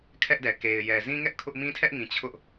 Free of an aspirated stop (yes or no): no